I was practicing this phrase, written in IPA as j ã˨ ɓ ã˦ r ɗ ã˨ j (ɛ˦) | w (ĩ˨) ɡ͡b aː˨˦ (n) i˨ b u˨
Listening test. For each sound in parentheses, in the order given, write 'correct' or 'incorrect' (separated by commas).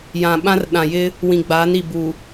incorrect, correct, correct